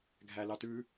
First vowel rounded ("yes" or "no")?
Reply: no